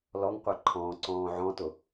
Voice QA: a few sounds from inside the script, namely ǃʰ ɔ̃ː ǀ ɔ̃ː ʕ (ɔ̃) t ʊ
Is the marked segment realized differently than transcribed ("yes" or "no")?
no